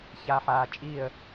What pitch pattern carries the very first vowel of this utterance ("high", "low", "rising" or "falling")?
low